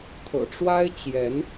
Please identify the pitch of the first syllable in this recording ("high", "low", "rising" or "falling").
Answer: low